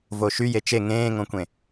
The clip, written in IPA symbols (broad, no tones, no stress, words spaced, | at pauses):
voʃy jet͡ʃe ŋẽːŋõkʷẽ